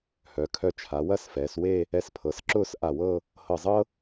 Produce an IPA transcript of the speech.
hœ˩˧kʰœ˧t͡ʃʰa˩˧ wɐ˥˧sfɛː˩˧swe˥˧ | ɛ˧spʰɤ˩˧sǁʊː˥˧s ʔa˧˩wɤ˥˧ | hɤ˧˩zˤɤ˥

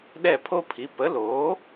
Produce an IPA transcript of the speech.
ɗɛ˥˩pʰo˥pʰi˩˥ pə˩˥loː˩˥

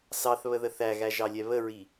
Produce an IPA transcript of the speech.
sɑθβəðə θæɣæʒɑlʲɛ βəɹi

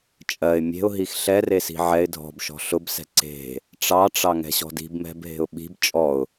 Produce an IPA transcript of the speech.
t͡ʃʼɜɪ̯ mʲe̤ʊ̯ɦix ɬɛresi̤ ʕɛɪ̯ dʱɔ̤bʃɔ̤ ɬʊbsɛ̤ ǀe̤ | ʈ͡ʂɑʈ͡ʂɑŋɛ̤ɕɔ̤ di̤bmɛ̤bɦe̤ʊ̯ ɓi̤b t͡ʃʼɔʊ̯

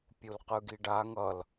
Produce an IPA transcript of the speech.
pʲulqɯɡiɖa ŋʌl

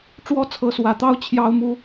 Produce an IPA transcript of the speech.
ʈ͡ʂwɔ˦t͡sʰɤ˨˦swä˨˩t̪ɑ˦ʊ̯ t͡ɕʰjɑ˦ʊ̯mu˨˦

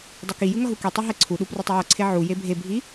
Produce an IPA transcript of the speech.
dˤɯkijɯ ŋʌɦukitˤu ɦɛǀʰuɗu prutˤijʌǀʰe ʕu jebʱebʱi

